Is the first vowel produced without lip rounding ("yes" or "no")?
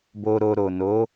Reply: no